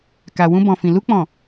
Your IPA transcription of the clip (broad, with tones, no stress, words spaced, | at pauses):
ka˨wũ˧bɔ̃˨fĩ˨ lu˧k͡pɔ̃˨